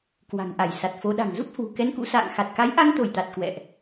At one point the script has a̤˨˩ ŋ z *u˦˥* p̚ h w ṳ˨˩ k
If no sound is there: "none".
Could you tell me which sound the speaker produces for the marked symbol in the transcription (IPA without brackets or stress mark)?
u˦˥